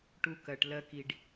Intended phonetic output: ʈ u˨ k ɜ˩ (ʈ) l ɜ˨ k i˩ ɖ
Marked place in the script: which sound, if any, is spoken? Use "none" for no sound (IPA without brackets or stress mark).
ʈ